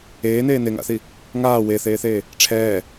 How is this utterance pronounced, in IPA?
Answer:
eːn̪eː n̪eŋa̰θi | ŋaː weθeːθeː | ʈ͡ʂʰɛː

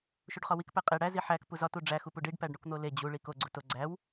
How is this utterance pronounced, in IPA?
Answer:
ʃuɖχɒwik pæqʼe ɽæ ziħæk puzɒ tuɖ͡ʐæ xupuɖiɖ pæɖɳukn̪ole d͡ʑu ɭiko ɡ͡ǀuto ɡ͡ǀæw

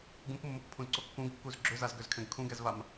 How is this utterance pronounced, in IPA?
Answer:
ɡũkmːokpʰũzǀo kːũɡkːuz ɡ͡ǁøzazɡøzkʰɛ̃ɡ kʰũɡɛzvam

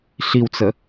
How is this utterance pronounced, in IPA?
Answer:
ɬiwt͡sə

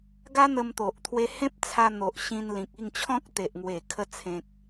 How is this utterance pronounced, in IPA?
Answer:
ɡa˦n̪ə˧mt̪o˨ʔ t̪ʰwe˧hẽ˦p̚t͡sʰa˧n̪o˨ʔ ɕĩ˧nlĩ˨k̚i˥˧ŋt͡ɕʰɔ̃˦k̚ t̪e˨ʔŋwe˨˩kʰə˧ t͡sʰẽ˨k̚

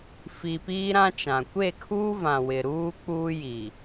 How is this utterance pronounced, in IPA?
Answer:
fi˨ piː˦ɾã˦t͡ʃã˨ kʷe˦˨kʰuː˦vã˨ wɪ˨ɾuː˦ k͡puː˦ji˨

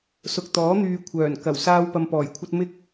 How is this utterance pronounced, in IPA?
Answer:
sʊ˨k̚t̪ɔː˨˥n̪yː˨ kʷʰœː˨˩n kɐ˨˩w saː˥wpɐ˧mpɔː˨˩jkʷʰɐ˥t̚ mɪ˥k̚

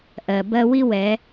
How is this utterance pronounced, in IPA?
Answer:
ʔɜ˩bɜ˥ wi˥wɛ˩˧

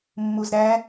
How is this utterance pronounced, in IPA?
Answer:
mːuzɾæ

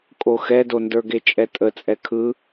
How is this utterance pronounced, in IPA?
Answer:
kʼoxɛdo ndə˞ɡet͡ʃʼɛtʼə t͡sʼɛkʰɯ

